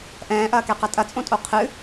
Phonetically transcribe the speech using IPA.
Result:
ʔɛ̃ːʔɐːkɛqɐ tʼɐt͡sʼõtʼo qʰɨ

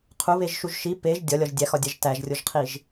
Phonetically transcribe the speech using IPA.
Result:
qʰuβeʒʃuʒ ʃi peʒ dʲɒlʲɒʒ dʲæxɒdʲæʒ tæʒrʲoʒqʰiʒ

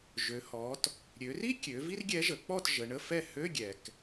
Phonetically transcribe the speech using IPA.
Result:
ʒø˩˧ hɔ˩˧t | ɾʲø˩˧ri˥kʲø˩˧ vi˥rɡʲɛ˧˥ʒə˩˧k͡pɔ˥˨t ʒə˩˧ɳə˧˥˧ fɛ˥˨ hø˧˥˧ɡʲɛ˩k

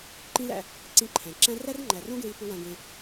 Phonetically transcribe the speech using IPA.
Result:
ǃĩ˦læ̰˧ | ǀĩ˧ǃʰæ̃˨ ǁæ̃˧ ræ˦rŋ͡ǃæ˨rõ˦ɡɹi˧ pu˧wæ̃˧ ɡẽ˧

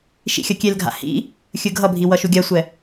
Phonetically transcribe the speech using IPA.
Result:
ʃḭxʲʌkʲelɡʱa̰ hḭ | xʲɯɡʱʌbʱi wʌʃuɡʲasʷɛ

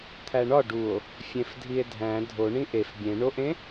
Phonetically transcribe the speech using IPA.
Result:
t̪ʰæɳɒ ɖuo̯ | fʲẽfdʱie̯dʱæ̃ dʱo ɳĩʔef bʲẽ ɳoʔẽ

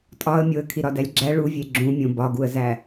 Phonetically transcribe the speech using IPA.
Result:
tʼɒə̯mʲoə̯ kʰiɾɒdælʲɡ͡ǁæ ɭuvʲe ɡ͡ǁũmʲõ bɒɡuə̯zæ

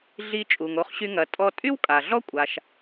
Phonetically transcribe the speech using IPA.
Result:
ɮi˧t͡ʃʼu˩ŋ o˧χɕy˧ ŋɐ˩ tʼɔ˧tʼy˥wkʼa˩ ɮɔ˥kʷʼa˩ʃ

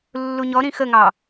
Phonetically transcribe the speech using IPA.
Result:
lːuɲɔ ɾĩxəŋɑ

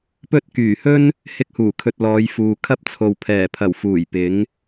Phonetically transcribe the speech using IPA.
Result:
pɵ˥t̚ kyː˨˩hɵ˥n | hɪ˧k̚huː˨˩kʰɵ˨t̚ lɔː˨˧jfuː˨ kʰɐ˥p̚t͡sʰo˨w pʰɛː˨˩pʰɐ˨˩w fuː˨˩j pɪ˨˥ŋ

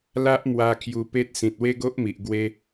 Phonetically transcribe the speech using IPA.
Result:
la˦ʔmwa˧ kʰju˧pe˦t̚ sĩ˨t̚we˦ɡo˦ʔmi˨ʔ ɡwe˧

